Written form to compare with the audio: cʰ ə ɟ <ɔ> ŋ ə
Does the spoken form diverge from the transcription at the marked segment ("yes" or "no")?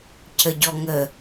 no